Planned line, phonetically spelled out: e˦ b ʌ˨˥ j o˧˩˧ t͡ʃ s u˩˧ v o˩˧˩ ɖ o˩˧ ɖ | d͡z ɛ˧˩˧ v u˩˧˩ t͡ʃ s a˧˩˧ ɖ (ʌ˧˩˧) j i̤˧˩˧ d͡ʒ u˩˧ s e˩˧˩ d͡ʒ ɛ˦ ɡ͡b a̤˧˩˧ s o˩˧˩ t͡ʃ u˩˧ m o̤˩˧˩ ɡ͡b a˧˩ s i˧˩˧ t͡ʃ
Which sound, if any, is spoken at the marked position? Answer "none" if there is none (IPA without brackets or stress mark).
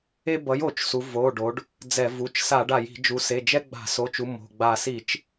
a˧˩˧